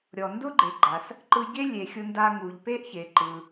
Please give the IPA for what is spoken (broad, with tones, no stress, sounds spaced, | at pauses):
ɾʲ ɔ˩ n d ʊ˥ ɡ͡ǃ e˩ ɡ͡ǃ a˩ s | ǃ ɯ˧ ɟ e˥ lʲ e˩ xʲ ʊ˧ n d a˧ ŋ u˩ ʎ p e˥ ʔ ç e˩ ǃ ɯ˩